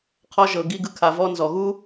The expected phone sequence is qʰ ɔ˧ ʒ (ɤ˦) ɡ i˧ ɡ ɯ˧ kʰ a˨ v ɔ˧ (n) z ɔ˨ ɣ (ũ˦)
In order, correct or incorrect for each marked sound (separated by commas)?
incorrect, correct, incorrect